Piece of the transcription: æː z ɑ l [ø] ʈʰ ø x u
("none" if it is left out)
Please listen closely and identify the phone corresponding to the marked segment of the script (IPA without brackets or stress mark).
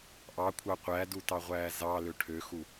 ø